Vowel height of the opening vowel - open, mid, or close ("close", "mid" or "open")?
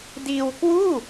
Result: close